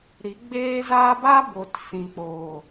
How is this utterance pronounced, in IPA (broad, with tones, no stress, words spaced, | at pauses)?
ɾi˨˦ɡ͡beː˦zaː˦ ba˦bo˨t sĩ˨ k͡poː˨